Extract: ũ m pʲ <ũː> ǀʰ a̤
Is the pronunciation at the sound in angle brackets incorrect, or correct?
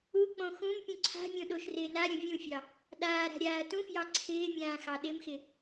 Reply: incorrect